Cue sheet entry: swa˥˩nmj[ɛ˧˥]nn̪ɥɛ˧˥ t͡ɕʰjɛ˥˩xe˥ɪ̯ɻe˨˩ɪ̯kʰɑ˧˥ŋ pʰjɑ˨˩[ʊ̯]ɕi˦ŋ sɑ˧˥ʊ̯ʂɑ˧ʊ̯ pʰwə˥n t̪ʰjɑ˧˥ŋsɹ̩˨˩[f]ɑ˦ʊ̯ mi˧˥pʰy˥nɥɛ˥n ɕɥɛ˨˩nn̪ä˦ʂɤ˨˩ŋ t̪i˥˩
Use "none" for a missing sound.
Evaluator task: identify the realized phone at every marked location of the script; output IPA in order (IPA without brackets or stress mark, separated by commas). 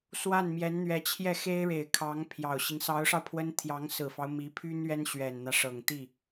ɛ˧˥, ʊ̯, f